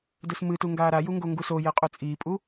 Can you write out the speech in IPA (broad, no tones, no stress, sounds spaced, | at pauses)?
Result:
d ɵ s m ɨ t u ŋ ɡ aː ɾ a j u ŋ ɡ o ŋ ɡ u s o j e qʼ u t͡sʼ iː pʼ u